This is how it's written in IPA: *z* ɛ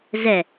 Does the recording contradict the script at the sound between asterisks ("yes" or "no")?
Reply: no